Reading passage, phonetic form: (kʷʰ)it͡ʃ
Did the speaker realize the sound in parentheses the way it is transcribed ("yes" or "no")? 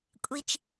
no